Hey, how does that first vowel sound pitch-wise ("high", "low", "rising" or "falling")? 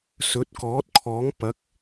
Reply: rising